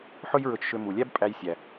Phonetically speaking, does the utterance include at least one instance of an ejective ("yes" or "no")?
yes